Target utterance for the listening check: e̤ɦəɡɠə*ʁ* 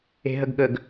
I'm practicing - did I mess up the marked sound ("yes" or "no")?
yes